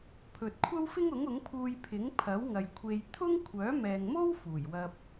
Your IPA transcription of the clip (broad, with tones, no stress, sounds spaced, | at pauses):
pʰ ɵ˨ t̚ kʷʰ ɐ˥ w f ɪ˥ ŋ ʊ˨˥ ŋ ʊ˨˥ ŋ pʰ uː˧ j pʰ ɪ˨˥ ŋ pʰ ɐ˨˥ w ŋ ɐ˨ j kʷʰ e˧ j t̪ʰ ʊ˥ ŋ kʷʰ œː˨˥ m ɛː˨ ŋ m o˥ w f uː˨˩ j w ɐ˧ p̚